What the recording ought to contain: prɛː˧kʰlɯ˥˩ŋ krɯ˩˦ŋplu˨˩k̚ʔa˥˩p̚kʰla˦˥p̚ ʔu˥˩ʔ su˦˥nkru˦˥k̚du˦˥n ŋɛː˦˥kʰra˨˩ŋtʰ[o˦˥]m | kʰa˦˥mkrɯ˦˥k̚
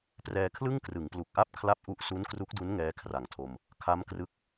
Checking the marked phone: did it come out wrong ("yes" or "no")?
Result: yes